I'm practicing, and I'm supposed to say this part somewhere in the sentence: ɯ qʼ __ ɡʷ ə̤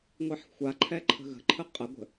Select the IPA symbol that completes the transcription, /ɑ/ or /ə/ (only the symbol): ə